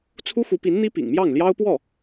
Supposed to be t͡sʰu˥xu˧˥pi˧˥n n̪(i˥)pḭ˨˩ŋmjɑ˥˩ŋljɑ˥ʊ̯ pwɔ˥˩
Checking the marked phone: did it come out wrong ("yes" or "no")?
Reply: no